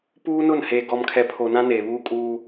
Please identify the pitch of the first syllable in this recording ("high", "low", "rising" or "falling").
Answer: high